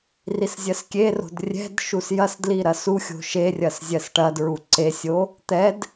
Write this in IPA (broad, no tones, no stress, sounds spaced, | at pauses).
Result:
r i s zʲ ɜ s kʲ e r o̤ d rʲ ɛ̤ d ʃ u s j ɐ s d l i ɾ ɐ s u xʲ o̤ ʃ e rʲ ɐ s zʲ ɜ s ʈ ɐ d ɹ u ǀ e sʲ o | t̪ ɛ d